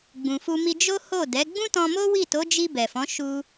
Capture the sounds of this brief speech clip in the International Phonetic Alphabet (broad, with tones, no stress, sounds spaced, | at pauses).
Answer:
ɡ͡b ũ˨ f u˧ m i˧ d͡ʒ o˦ h o˦˨ d ɛ˨˦ ɡ͡b ũ˦ t ɔ̃˧ m o˦ w i˦˨ t o˨˦ d͡ʒ i˧ b ɛ˨ f ɔ̃˨˦ ʃ u˧